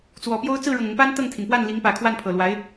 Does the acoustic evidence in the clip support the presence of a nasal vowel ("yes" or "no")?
no